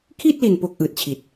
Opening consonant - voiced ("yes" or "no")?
no